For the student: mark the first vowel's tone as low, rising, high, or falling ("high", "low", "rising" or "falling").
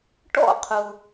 falling